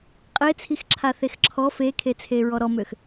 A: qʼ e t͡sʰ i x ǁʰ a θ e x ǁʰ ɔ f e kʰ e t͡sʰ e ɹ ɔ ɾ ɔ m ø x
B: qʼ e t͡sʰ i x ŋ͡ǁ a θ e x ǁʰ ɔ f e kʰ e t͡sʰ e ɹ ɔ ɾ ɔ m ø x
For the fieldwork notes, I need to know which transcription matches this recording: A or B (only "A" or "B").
A